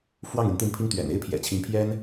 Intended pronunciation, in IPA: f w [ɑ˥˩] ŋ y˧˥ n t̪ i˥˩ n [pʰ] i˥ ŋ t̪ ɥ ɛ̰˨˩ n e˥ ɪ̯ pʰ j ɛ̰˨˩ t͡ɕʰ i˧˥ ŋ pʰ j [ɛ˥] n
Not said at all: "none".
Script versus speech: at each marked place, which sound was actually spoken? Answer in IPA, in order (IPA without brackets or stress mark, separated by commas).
ɑ˥˩, pʰ, ɛ˥